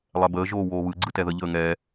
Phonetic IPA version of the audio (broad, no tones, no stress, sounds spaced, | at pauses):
lˠ ɛ b əː ʒ oː w oː β ɯ ɡ͡ǀ ɯ t ɛ ð ə ʎ əː ŋ ɛ